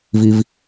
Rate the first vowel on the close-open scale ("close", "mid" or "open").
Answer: close